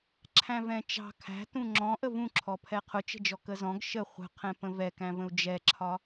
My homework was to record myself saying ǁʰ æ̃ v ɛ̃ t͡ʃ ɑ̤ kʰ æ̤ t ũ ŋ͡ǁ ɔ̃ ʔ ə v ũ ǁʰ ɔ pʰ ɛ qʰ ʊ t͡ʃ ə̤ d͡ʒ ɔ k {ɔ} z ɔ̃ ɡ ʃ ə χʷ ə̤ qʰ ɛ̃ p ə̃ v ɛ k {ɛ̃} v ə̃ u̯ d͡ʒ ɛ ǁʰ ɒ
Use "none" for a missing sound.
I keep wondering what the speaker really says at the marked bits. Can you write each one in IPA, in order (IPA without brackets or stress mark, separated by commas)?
ə, æ̃